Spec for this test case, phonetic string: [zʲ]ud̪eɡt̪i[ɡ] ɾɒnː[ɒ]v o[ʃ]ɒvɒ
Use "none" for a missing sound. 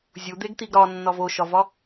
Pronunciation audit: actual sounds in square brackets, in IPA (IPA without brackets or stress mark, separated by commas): zʲ, ɡ, ɒ, ʃ